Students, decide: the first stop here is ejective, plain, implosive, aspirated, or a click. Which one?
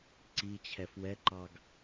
click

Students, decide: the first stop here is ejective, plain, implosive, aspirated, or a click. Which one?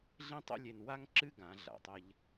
plain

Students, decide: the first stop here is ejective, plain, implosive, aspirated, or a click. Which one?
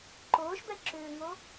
click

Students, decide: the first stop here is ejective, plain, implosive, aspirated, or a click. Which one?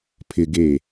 aspirated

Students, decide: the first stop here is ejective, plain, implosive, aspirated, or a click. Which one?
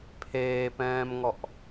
aspirated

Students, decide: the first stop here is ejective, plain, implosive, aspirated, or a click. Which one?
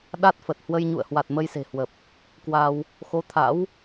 implosive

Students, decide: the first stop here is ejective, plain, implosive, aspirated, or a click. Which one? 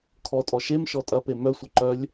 aspirated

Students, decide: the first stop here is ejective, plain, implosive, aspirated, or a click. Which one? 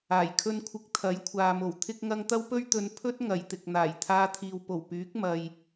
aspirated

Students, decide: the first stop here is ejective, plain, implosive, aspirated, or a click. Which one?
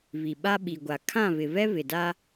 implosive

